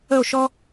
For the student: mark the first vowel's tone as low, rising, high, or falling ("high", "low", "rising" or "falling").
falling